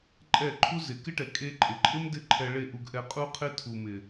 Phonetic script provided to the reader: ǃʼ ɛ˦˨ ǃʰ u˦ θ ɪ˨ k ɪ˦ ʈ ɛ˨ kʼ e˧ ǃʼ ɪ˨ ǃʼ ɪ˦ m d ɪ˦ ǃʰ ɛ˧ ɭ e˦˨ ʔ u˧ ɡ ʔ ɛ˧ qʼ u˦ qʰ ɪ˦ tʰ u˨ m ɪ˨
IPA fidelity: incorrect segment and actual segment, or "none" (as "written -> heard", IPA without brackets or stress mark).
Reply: θ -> z